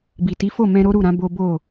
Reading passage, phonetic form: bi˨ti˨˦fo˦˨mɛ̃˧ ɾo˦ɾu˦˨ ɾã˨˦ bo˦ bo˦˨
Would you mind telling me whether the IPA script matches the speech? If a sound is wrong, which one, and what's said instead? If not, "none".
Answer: none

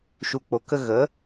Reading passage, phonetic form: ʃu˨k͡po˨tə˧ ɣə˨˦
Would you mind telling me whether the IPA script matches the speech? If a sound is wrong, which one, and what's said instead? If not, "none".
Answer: t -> k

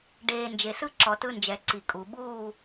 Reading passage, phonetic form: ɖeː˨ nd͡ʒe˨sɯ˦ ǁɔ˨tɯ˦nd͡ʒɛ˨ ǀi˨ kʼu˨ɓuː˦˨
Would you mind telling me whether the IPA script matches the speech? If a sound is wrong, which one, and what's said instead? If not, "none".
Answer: none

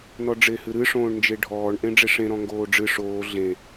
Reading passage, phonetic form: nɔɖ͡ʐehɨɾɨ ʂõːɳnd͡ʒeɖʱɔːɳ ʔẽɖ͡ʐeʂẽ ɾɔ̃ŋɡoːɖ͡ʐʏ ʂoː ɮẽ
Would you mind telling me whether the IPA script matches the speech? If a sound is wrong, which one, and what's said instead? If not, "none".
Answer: ʏ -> ɨ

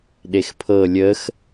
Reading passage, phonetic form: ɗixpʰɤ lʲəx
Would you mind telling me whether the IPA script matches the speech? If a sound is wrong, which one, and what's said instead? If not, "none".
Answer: i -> e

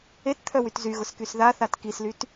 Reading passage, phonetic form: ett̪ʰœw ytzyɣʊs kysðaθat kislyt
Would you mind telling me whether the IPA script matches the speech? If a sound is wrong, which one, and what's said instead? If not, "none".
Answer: none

